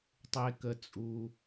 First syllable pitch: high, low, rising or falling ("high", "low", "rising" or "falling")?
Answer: low